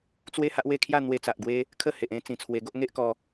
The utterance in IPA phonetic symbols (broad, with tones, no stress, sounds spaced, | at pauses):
t͡s w e˦ h a˦ ʔ w e˥˧ kʰ j a˥˧ n̪ w e˧ t͡s a˨ ʔ ɡ w e˦ | kʰ ə˥˧ h e˨ ʔ ẽ˦ t͡s ĩ˨˩ t͡sʰ w e˧ ɡ o˦ ʔ ŋ e˦ ʔ k ɔ˦